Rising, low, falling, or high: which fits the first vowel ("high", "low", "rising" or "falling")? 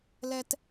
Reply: high